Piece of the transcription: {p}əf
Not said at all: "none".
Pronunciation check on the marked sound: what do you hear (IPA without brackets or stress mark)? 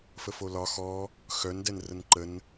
f